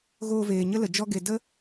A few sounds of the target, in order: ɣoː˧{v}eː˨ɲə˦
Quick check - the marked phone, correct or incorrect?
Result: correct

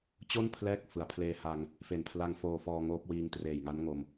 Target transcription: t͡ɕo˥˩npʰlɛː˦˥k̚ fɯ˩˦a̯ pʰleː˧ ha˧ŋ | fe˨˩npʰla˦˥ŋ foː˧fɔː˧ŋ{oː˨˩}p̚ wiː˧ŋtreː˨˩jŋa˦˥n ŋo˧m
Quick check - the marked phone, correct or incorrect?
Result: incorrect: oː˦˥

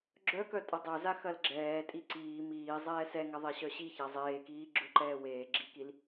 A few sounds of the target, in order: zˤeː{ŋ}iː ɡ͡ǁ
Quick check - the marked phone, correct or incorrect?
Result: incorrect: k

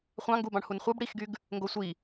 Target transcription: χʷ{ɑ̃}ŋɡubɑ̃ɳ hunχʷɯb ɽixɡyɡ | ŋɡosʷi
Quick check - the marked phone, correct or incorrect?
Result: correct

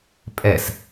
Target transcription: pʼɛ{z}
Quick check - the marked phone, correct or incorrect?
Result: incorrect: s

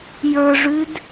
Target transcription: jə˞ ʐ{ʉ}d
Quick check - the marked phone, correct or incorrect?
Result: correct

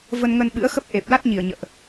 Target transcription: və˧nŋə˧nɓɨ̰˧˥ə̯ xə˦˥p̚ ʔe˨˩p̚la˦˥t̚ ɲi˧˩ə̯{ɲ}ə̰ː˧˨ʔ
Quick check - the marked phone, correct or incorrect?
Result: correct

